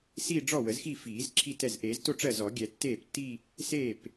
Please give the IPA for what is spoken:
siː˥˧ ɖ͡ʐɔ˥˩wə˨˩˦zxi˥˩ fiː˨˩˦z ǁʰi˥˩tɛ˥˩z ʔeː˨˩˦zto˥˧ ʈ͡ʂɜ˥˩zɔ˨˩˦ ɡʲɛ˨˩˦tːeː˥˩ptːi˥˧ | seː˥˩p

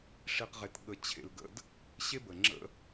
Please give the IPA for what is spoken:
ʂi˧qʁe˧tɠə˧ t͡ɕʰḛ˧lɡə̰˦d | ɕe˦bə˨ŋ͡ǁə̰˦

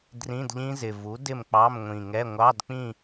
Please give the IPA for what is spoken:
drĩ˧˥˧dʎĩ˦˥zɪ˨˩ vu˩˥ dɪ˥˨mk͡pɑ˧˥˧mŋʷĩ˨˩ŋɛ˧˥˧ ŋʷɑ˧˥˧dk͡pĩ˥˨

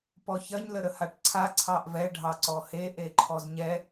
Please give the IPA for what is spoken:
pɔçɐɲ ləɾəhaʈǀʰa ǀʰɑʔvɛ ɖʱɑǀɔhe ʔeǃʰɔzɲɛ

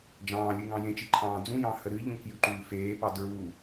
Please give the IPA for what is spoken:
d͡ʒɑ̃ːlʲɨ ŋɑ̃jẽt͡ʃi ǃʰɑ̃ːd͡zũjɑ̃ həɾɨʎũ kjʉǃʉːfeːpɑ dɹu

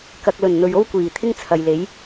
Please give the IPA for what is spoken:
kɐ˨k̚lɵ˨˩n n̪ɵ˨ɥo˥wkʷiː˨˩t̪ʰɪ˥ŋ t͡sʰɐ˨jle˨˥j

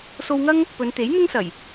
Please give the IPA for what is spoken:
so˧wŋɐ˥ŋ | pɵ˨˧nt̪e˨˥j n̪ʊ˥ŋsɐ˨˩j

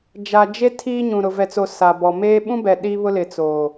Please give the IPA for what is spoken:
d͡ʒa˨d͡ʒe˦ tʰiː˦ɲũ˨ ɾʊ˨vɛ˨t͡so˨ sa˨bɔ˨meː˦ ɓũ˦bɛ˨ ɗiː˦βʊ˦lɪ˨ t͡soː˨

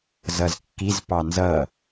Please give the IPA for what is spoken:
zʌzkːiz pɑnzʌ

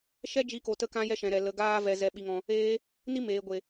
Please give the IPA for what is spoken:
ʃɛ˦d͡ʒi˧ko˨tə˧ kã˧jɛ˧ʃɛ̃˨ ɾɛ˨ lə˨ ɡaː˦vɛ˧ zɛ˧ɓi˧ŋɔ̃˧ | eː˧ | ni˦meː˨ɡʷe˨

